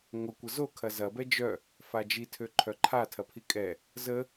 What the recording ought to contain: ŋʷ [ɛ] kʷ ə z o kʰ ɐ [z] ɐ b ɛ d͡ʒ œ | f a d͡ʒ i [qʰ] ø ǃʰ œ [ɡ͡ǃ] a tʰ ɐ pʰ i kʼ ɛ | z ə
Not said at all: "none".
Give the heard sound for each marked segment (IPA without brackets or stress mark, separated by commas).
ə, z, tʰ, ǃʰ